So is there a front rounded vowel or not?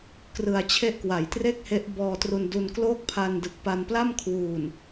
no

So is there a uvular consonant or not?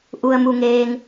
no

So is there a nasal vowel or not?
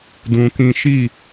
yes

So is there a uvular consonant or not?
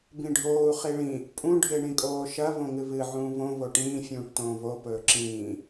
yes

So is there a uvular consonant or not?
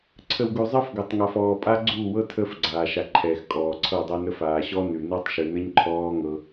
no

